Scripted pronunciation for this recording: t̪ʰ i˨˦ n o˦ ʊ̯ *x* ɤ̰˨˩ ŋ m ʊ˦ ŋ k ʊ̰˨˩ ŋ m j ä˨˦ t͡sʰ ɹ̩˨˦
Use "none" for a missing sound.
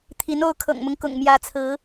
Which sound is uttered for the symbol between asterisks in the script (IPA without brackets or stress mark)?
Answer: kʰ